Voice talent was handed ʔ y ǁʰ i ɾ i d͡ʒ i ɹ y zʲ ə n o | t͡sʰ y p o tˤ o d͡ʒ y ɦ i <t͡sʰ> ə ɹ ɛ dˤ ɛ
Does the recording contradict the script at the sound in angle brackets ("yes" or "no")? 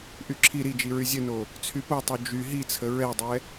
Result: no